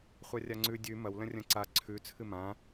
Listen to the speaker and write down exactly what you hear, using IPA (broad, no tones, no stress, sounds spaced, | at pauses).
χʷ a rʲ a ŋ͡ǀ ʉ dʲ ʉ m ɐ w l ɐ̃ rʲ ɐ̃ ǀ a ǀʰ ʉ t͡sʰ ɨ m ã